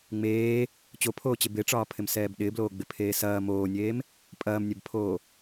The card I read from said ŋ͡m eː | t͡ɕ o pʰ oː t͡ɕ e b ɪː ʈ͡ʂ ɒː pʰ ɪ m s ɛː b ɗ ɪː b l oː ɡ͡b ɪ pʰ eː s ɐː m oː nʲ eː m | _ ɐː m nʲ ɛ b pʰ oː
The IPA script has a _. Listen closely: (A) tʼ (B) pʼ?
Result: B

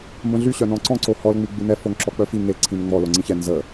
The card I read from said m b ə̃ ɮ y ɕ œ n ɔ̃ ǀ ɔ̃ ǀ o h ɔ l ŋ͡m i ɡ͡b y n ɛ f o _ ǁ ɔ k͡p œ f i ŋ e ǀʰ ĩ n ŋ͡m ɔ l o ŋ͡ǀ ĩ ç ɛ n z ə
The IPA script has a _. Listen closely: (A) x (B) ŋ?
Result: B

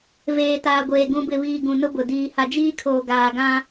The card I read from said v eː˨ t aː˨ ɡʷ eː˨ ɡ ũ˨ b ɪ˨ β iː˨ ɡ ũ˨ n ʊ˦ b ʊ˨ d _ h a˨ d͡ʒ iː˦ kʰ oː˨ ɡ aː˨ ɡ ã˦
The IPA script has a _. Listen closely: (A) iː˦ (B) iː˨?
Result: B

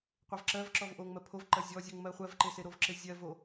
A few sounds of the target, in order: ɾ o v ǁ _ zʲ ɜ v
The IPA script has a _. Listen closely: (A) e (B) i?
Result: A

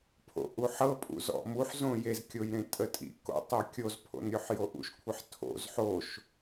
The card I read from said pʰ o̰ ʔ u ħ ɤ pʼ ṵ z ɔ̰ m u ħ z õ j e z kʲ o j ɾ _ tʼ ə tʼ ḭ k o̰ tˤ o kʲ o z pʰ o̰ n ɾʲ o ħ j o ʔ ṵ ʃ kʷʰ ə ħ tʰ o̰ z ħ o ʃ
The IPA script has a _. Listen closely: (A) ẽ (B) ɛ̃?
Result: A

